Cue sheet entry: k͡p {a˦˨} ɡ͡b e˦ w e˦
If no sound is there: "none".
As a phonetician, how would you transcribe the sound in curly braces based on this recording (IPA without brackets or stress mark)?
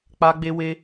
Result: a˦